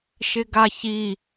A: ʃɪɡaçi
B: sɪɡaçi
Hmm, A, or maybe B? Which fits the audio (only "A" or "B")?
A